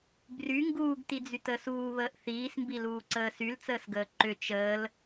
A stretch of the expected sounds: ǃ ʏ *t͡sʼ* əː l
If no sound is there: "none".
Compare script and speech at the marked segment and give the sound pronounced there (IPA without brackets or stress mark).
t͡ʃ